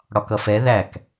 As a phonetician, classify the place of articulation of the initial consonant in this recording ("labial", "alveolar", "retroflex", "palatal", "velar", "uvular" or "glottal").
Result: retroflex